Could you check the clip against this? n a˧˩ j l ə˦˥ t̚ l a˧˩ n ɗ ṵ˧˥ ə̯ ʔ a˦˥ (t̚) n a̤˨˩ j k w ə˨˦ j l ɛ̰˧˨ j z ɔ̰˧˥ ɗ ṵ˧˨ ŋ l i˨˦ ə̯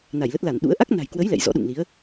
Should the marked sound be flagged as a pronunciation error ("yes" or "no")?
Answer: yes